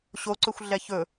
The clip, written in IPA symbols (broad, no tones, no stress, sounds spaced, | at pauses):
ɕ o ǀ ɵ xʷ ɮ ɛ ç ɵ